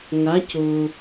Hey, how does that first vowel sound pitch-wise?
rising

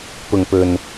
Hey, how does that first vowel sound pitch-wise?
low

